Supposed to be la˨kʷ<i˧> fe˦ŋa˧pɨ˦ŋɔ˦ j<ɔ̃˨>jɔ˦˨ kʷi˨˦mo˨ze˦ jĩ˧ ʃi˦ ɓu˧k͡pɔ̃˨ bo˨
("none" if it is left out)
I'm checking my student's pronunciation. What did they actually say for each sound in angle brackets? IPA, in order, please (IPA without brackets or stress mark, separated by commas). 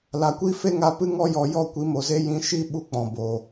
i˦, ɔ˨